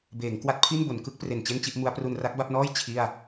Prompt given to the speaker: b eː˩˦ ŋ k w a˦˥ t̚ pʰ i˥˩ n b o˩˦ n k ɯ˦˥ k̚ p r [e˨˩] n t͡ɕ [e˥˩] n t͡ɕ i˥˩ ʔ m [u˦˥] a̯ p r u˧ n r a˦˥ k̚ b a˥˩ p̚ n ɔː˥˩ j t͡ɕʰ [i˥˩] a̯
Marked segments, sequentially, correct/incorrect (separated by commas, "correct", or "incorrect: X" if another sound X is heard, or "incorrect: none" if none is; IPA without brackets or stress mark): correct, correct, correct, correct